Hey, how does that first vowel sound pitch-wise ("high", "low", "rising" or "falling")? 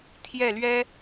falling